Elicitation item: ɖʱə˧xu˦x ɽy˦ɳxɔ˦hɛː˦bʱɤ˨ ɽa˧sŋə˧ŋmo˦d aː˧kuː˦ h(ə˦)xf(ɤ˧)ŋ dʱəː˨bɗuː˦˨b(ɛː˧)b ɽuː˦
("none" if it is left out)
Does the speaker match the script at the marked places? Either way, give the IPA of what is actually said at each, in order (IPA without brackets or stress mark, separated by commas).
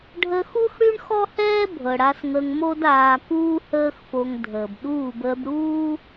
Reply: əː˦, o˧, əː˧